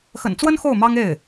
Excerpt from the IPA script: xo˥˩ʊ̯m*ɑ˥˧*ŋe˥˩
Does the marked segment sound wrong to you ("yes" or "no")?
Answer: yes